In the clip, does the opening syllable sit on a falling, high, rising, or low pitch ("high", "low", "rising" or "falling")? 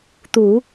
low